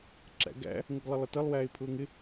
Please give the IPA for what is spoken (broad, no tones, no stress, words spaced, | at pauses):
ǁæ̰ɡæ̰ | ŋəɡlˠəlˠətʌlˠ wæːɪ̯pʰʊːŋɪ